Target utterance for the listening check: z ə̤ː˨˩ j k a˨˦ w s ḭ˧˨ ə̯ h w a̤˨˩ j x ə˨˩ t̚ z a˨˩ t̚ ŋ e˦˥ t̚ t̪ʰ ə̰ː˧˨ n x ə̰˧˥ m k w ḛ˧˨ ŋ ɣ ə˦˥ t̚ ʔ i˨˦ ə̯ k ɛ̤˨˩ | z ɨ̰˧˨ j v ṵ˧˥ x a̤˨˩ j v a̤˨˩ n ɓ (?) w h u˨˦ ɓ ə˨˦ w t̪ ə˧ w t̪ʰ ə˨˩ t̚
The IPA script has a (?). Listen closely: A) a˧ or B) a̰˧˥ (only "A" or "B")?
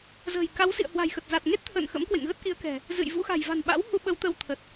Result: B